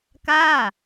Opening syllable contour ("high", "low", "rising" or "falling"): falling